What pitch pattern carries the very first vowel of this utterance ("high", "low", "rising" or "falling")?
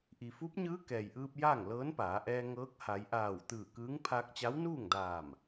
low